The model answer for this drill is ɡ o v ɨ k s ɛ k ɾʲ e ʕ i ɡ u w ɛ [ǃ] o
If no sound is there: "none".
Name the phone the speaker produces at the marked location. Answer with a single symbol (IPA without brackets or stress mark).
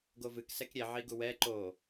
ǃ